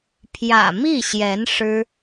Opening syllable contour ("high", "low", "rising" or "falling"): low